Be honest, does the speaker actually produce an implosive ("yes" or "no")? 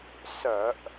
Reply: no